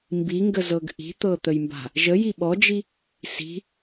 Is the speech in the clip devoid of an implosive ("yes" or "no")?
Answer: no